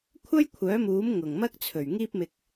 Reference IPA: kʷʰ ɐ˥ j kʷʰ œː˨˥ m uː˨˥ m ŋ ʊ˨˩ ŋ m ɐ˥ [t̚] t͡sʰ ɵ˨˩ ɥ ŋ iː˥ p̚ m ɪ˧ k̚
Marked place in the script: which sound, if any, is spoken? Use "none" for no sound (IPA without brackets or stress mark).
k̚